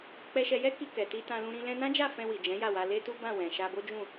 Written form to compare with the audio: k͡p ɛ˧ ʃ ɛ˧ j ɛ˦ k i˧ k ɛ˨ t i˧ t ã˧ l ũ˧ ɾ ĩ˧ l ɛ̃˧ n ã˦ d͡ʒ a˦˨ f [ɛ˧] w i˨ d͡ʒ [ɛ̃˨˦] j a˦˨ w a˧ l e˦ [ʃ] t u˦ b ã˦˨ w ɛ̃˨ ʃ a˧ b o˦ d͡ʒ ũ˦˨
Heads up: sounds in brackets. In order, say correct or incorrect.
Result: incorrect: ɛ̃˧, correct, incorrect: none

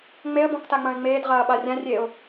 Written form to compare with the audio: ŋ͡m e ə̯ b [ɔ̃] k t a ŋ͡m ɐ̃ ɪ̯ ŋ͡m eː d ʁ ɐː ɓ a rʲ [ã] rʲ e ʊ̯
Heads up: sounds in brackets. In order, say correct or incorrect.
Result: correct, correct

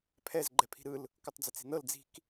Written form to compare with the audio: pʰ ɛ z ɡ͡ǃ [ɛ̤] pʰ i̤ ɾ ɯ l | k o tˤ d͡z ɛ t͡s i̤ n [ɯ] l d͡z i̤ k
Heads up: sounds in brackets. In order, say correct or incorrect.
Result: incorrect: ɛ, incorrect: ɤ

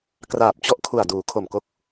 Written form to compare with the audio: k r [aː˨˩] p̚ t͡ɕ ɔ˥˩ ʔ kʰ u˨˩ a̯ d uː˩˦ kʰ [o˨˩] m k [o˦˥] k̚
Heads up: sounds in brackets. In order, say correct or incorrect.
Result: correct, correct, correct

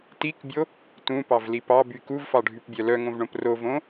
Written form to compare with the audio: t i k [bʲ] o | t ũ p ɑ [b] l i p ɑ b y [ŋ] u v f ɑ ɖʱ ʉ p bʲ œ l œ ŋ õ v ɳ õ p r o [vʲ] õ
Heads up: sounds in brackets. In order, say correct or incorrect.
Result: correct, incorrect: v, incorrect: k, incorrect: v

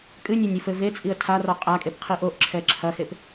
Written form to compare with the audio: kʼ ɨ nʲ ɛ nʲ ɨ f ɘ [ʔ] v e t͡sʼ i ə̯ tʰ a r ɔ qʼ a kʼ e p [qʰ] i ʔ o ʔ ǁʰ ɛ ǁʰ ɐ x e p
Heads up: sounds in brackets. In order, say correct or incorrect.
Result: incorrect: none, correct

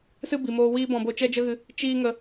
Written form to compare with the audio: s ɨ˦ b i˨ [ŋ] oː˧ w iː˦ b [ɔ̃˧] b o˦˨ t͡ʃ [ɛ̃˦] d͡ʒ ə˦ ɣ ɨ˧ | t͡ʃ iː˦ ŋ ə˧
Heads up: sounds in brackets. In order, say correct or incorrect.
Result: incorrect: m, correct, incorrect: ɛ˦

